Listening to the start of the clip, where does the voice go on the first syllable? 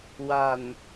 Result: low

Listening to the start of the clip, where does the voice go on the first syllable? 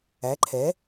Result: rising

